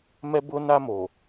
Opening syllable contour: high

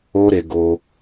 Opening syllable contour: high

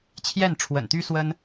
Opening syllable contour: falling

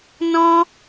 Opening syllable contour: high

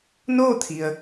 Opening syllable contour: falling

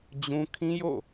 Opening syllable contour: high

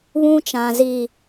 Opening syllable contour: high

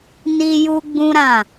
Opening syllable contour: high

